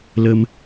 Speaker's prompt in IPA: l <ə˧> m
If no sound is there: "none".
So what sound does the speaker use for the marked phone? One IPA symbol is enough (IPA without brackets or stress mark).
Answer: ə˧